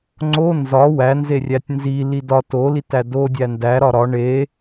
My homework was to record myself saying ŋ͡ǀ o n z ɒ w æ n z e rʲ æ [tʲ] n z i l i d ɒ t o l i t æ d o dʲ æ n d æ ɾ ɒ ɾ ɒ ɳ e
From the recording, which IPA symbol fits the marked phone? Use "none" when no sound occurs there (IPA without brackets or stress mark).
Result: tʲ